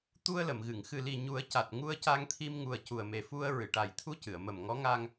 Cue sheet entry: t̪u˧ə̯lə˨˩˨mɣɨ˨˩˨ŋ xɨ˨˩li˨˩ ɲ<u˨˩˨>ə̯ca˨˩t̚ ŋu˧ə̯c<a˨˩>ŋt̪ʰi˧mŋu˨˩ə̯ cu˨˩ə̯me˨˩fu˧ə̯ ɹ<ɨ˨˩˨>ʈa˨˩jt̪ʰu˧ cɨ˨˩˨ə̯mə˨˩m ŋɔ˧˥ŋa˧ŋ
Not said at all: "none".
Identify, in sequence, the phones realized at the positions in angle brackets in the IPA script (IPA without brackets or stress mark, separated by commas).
u˨˩˦, a˧, ɨ˨˩˨